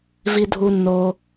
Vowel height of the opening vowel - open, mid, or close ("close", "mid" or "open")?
close